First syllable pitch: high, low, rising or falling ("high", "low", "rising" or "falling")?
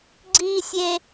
high